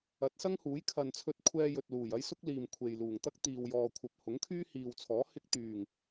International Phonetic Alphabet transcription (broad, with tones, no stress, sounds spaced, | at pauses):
ɐ˨˥ t̚ s ɐ˥ ŋ h uː˨˥ j kʰ ɐ˨ n t͡sʰ ɵ˧ t̚ kʷʰ ɛː˧ j ɵ˨ t̚ l uː˨˩ j ɐ˥ j s ʊ˥ k̚ l iː˨ m kʷʰ e˨ j l uː˨˩ ŋ t̪ ɐ˥ k̚ t̪ iː˨ w j ɔː˨ kʷʰ ɐ˨ p̚ h ʊ˨˥ ŋ kʰ yː˥ h iː˨ w t͡sʰ ɔː˨˥ h ɪ˧ k̚ t̪ yː˨˩ ŋ